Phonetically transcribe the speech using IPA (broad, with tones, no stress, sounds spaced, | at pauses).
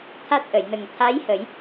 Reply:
t̪ʰ a˦˥ t̚ ʔ ə˨˩˨ j n ə˨˩ ŋ t̪ʰ a˧˥ j h ə˨˩˦ j